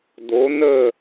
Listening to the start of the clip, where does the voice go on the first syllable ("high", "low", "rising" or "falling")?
rising